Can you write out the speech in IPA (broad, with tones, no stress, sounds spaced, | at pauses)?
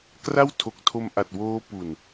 k r a˥˩ w tʰ o˨˩ k̚ tʰ o˧ m ʔ a˨˩ t̚ w oː˦˥ p u˨˩ n